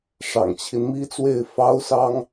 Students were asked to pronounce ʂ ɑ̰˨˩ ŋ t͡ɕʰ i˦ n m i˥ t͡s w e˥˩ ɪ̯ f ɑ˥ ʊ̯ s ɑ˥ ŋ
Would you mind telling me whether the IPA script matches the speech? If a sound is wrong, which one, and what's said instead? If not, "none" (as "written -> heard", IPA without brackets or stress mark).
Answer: none